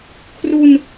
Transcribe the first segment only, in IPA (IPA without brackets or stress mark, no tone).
kʰ